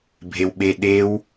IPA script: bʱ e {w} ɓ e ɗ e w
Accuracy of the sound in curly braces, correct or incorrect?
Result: correct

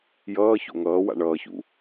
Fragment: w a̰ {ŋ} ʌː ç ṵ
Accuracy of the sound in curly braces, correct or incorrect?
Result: incorrect: ɳ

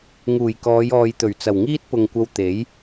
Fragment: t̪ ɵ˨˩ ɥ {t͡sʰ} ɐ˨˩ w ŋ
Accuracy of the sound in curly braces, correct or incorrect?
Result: incorrect: t͡s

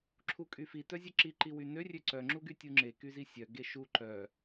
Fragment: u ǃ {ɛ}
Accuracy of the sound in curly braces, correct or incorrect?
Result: incorrect: œ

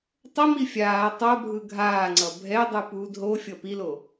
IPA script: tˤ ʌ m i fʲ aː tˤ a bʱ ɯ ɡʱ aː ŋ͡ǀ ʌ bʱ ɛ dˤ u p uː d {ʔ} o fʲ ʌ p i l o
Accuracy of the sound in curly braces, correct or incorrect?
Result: incorrect: ɦ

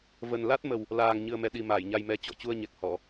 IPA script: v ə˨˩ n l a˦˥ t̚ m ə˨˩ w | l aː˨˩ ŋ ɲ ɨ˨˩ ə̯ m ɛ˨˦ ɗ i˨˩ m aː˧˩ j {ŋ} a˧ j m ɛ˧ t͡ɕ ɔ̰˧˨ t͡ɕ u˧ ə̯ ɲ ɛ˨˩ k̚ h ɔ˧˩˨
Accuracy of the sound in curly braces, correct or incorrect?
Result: incorrect: ɲ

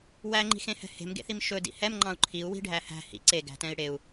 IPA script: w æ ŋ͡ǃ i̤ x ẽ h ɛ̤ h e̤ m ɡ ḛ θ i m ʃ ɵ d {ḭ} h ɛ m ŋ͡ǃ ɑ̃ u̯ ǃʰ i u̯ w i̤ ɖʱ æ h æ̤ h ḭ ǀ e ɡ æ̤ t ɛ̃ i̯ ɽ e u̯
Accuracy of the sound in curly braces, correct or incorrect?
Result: correct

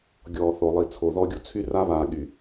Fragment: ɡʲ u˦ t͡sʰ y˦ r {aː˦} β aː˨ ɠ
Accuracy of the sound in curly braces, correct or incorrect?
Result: incorrect: a˦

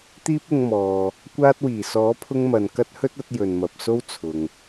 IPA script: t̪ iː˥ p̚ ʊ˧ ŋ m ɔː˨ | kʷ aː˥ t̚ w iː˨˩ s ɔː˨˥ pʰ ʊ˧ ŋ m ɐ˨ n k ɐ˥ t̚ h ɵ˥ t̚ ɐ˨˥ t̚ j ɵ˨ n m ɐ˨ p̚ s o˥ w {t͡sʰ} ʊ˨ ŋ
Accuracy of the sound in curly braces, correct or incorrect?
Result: correct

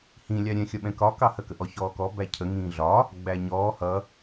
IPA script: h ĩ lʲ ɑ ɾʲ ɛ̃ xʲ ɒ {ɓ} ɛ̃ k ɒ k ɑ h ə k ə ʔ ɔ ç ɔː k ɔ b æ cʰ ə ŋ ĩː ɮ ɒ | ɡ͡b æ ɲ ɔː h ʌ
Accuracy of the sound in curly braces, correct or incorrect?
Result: correct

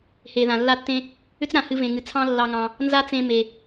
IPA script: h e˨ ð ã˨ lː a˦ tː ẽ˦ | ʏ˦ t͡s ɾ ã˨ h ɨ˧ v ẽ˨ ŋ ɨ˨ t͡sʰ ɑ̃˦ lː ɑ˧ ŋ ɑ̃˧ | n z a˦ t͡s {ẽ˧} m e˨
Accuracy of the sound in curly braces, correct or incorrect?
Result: correct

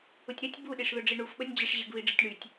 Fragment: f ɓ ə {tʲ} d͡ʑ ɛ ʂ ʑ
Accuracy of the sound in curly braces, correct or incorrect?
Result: incorrect: nʲ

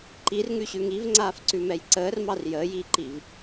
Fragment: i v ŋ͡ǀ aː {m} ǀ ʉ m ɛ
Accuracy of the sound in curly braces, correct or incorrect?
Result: incorrect: f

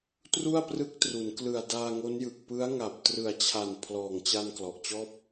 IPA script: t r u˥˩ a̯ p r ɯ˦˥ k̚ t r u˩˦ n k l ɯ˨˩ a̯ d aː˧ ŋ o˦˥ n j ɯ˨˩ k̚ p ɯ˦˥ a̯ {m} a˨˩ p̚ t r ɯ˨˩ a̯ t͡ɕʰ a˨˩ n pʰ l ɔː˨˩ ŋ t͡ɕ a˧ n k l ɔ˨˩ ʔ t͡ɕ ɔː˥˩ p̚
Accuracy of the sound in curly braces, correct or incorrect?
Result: incorrect: ŋ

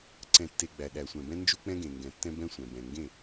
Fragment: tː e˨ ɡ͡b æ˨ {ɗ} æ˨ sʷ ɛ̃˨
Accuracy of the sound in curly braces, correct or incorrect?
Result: correct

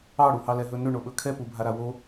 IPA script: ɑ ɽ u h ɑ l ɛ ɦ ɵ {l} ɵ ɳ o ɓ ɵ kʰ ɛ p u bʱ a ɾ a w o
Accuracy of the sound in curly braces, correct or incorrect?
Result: incorrect: n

